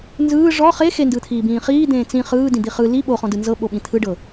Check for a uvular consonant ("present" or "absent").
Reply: present